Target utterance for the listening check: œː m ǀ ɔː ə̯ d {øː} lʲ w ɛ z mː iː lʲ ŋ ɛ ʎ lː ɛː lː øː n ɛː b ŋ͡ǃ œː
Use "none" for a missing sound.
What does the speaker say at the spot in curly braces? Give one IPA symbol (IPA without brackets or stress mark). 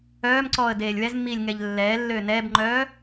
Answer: eː